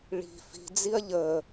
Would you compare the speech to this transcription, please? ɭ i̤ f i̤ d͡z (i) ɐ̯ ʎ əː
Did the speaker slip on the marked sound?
no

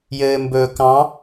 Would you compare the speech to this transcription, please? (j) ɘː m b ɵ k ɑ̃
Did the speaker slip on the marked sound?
no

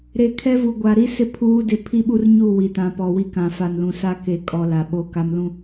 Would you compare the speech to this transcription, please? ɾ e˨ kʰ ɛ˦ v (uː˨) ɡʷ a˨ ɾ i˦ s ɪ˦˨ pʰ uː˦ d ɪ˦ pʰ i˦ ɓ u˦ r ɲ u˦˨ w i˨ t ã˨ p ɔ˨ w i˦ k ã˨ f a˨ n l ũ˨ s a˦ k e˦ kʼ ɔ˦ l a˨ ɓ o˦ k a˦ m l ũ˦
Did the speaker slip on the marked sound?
yes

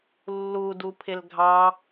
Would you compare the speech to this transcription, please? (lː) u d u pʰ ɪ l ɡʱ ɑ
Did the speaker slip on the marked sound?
no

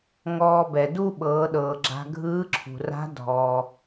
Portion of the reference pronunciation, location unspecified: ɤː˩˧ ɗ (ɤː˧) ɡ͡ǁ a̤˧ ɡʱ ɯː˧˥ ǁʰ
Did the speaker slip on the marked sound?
yes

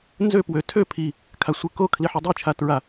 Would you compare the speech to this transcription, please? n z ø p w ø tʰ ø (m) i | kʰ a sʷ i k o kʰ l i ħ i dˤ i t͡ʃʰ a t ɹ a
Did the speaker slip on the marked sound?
yes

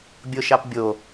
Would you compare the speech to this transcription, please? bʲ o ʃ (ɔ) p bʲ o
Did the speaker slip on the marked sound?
yes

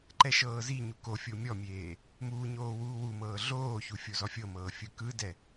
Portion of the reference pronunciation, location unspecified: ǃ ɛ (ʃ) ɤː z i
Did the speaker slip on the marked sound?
no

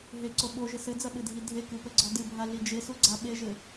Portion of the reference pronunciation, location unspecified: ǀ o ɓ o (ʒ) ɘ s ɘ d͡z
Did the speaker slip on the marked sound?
no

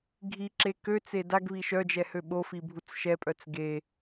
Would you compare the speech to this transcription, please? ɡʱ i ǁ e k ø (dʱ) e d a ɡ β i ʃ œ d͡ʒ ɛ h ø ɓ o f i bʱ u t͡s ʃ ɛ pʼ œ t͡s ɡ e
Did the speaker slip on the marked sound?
yes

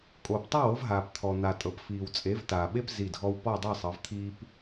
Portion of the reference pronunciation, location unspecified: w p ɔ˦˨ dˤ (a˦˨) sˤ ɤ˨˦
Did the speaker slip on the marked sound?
no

